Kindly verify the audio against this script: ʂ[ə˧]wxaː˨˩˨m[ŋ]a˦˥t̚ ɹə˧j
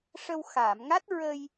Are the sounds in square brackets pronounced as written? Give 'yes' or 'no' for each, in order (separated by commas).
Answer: yes, yes